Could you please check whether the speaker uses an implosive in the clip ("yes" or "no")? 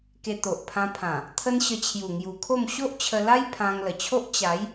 no